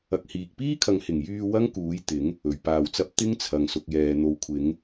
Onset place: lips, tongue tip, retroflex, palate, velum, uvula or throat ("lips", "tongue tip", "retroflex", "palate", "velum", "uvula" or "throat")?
velum